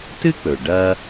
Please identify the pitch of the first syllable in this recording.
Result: high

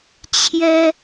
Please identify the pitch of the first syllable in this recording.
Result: high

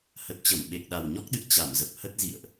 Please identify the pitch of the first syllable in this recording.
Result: low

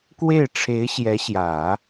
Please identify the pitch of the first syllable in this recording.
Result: falling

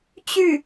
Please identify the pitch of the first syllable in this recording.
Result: falling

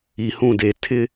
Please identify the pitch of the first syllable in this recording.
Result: low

